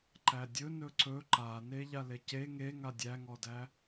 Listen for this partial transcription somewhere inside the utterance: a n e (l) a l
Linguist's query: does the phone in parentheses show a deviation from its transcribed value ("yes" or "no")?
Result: yes